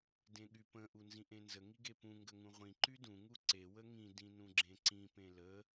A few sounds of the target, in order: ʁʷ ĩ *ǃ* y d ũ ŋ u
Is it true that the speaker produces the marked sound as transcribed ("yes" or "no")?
yes